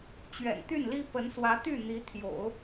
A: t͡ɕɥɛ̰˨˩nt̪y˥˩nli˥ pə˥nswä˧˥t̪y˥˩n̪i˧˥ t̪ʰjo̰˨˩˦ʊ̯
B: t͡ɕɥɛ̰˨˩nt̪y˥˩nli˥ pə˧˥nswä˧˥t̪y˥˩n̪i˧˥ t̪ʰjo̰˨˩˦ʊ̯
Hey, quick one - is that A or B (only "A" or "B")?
B